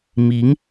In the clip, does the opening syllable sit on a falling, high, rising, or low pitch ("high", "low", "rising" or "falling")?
rising